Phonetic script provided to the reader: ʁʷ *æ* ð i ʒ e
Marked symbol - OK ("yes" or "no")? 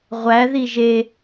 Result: yes